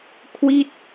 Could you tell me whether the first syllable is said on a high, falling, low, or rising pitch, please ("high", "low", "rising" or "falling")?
falling